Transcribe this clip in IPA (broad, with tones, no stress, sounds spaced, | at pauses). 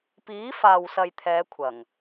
p iː˨˥ f aː˨ w s ɐ˨ j t̪ʰ ɛː˨˧ kʷʰ ɐ˨˩ ŋ